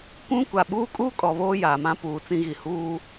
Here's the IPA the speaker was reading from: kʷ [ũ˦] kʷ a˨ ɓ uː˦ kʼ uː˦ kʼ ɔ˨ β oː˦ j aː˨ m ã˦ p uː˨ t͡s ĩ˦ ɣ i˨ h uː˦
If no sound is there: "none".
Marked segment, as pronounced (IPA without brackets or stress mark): ũ˦